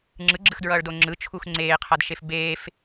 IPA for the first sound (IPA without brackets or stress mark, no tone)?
ŋ͡ǁ